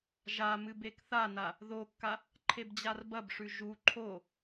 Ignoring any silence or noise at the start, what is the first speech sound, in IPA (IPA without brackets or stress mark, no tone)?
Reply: ʒ